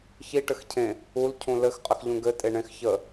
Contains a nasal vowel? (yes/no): yes